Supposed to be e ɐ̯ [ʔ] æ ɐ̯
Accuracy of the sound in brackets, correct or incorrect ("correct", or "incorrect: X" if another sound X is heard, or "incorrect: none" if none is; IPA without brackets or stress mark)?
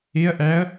correct